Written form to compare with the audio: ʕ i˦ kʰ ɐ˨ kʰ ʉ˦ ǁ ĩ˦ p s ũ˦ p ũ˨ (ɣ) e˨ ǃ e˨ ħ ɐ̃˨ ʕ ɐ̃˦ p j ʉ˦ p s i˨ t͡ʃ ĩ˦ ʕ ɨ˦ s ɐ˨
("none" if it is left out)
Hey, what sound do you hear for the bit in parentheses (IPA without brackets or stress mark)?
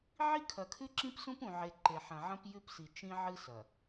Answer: ʕ